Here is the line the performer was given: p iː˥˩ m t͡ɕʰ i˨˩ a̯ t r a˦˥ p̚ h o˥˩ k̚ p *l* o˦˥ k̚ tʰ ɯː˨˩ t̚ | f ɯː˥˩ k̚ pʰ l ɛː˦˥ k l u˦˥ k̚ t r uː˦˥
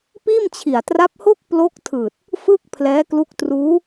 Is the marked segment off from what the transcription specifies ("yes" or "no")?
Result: no